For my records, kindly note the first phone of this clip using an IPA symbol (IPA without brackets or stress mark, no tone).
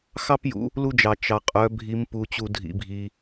x